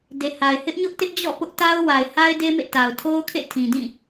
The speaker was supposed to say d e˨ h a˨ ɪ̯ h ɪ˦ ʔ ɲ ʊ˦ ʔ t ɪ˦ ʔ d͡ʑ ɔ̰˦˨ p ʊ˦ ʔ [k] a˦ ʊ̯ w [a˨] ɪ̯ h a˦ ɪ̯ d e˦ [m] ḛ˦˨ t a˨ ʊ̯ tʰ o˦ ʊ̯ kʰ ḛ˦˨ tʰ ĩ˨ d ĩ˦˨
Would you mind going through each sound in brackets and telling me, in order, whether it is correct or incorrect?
incorrect: t, correct, correct

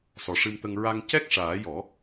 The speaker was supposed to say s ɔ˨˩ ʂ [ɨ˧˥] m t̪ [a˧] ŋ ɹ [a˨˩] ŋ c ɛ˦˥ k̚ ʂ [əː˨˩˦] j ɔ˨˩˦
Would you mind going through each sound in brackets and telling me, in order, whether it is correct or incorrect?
incorrect: ɨ˧, incorrect: ə˧, incorrect: a˧, incorrect: aː˨˩˦

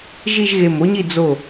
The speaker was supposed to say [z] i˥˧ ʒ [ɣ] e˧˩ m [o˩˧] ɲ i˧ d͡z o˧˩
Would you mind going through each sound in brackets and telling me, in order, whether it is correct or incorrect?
incorrect: ʒ, correct, incorrect: o˥

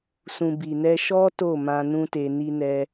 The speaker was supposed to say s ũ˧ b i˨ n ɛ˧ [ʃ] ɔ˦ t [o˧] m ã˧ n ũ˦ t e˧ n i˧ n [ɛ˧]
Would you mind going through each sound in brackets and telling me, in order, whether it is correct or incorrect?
correct, incorrect: o˦˨, correct

